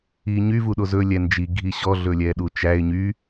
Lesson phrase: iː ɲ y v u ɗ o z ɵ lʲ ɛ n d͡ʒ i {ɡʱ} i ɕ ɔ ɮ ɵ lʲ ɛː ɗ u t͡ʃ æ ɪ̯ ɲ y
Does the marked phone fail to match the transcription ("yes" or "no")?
no